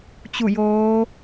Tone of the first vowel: falling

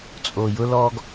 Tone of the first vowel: low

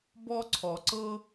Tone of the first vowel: high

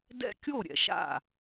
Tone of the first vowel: falling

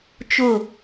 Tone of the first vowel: falling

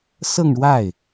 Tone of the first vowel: falling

